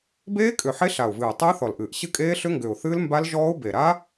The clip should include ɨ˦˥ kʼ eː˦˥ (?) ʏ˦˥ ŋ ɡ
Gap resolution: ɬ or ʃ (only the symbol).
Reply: ɬ